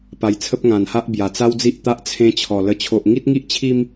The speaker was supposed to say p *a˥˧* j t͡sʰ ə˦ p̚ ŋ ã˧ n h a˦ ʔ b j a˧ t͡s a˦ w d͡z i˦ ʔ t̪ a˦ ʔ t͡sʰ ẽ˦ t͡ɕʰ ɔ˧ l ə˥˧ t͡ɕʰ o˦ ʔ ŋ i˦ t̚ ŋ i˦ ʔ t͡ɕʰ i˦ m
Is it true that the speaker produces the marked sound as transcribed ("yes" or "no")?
no